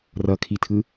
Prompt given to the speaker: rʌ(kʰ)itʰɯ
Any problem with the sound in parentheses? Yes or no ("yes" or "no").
no